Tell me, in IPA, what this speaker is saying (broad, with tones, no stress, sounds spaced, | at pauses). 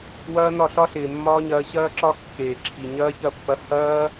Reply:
w ɐː˦ n ɒ˦˨ ɬ ɒ˦ ɬ ɪː˨ mː ɒː˦ ɲ ɐː˧ ɕ ɐː˦ ǁ ɒ˦ kː eː˨ ǁʰ i˨ ɲ ɐː˦ ç ɐ˦˨ pː ɐ˧ h ɐː˦